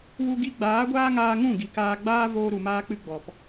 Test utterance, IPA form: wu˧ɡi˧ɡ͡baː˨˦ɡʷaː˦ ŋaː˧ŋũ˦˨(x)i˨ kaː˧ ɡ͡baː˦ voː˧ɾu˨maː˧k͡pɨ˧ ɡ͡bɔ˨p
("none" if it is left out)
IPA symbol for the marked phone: ɡ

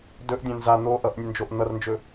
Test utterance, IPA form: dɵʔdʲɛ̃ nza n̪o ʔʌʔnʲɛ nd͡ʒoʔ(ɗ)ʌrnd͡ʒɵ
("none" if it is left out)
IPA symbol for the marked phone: n̪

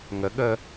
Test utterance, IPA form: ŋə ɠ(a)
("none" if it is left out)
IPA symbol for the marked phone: ə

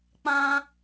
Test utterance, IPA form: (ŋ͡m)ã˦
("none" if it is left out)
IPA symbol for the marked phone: k͡p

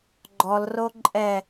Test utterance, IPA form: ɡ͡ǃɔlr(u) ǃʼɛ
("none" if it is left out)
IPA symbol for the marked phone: o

